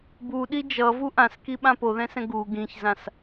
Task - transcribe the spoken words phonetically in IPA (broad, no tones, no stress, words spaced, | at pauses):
buɗi d͡ʒʌvu ʔãskiɓã poðɛ̃sɛ̃ ɡu ɡĩçzãs